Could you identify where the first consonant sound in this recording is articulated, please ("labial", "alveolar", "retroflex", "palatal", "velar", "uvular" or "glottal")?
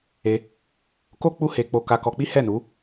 velar